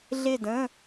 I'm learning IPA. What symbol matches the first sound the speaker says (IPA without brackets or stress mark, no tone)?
ɮ